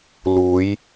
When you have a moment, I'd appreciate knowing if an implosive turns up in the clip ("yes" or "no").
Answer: no